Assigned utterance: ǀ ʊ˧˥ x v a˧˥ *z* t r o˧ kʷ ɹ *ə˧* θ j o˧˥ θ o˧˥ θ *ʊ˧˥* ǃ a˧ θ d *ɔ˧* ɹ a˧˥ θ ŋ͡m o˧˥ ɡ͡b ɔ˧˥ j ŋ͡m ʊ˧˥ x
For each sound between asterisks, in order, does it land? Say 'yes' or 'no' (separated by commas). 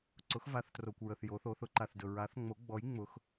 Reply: no, yes, yes, no